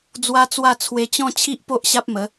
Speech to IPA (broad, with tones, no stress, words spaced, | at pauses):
d͡zwa˦t͡swa˥˧ t͡sʰwe˧t͡ɕɔ̃˥˧ t͡ɕʰi˦ʔpo˦ʔ ɕa˦p̚mə˨˦